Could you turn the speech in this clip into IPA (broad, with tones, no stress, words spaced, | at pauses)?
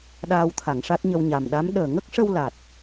ɗaː˧wt̪ʰa˨˩˨ŋʂa˦˥t̚ɲə˧w ɲa˨˩mɗa˧˥m ɗəː˨˩ŋə˦˥k̚ʂə˧w la˨˩t̚